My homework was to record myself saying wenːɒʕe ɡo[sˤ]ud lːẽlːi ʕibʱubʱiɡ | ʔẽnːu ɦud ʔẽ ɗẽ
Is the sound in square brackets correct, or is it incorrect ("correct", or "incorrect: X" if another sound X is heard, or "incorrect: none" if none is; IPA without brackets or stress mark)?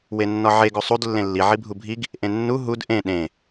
correct